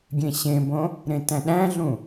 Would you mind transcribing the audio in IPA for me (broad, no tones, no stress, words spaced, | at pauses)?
ɡʲẽɕẽbõ | ɾẽtæ̃ɗæ̃ɮũ